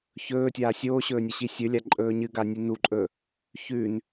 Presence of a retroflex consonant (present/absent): absent